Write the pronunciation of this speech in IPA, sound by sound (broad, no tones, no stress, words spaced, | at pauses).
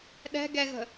ɗɛ̤ɡɛɣə̤